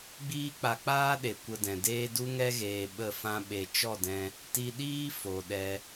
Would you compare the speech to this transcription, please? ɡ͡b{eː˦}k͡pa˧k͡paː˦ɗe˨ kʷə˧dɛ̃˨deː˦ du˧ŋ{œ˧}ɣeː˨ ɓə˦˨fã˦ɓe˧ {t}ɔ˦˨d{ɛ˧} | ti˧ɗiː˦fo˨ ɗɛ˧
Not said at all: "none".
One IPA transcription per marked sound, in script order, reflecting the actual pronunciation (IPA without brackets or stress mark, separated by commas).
iː˦, ɛ˧, t͡ʃ, ɛ̃˧